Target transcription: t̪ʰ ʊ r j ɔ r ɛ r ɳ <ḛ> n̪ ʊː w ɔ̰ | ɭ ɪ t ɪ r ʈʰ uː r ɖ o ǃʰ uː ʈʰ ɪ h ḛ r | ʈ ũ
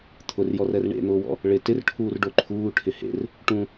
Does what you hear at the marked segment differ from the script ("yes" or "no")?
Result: no